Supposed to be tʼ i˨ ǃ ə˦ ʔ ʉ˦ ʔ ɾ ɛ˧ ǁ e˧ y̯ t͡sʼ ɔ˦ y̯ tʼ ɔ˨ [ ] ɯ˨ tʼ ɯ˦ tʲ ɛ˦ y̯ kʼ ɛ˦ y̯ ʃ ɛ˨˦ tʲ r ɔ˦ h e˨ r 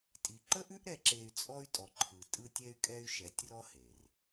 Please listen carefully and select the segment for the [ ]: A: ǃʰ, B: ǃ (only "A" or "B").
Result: A